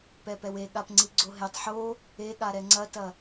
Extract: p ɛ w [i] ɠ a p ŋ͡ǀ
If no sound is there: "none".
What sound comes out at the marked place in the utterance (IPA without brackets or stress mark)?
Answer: e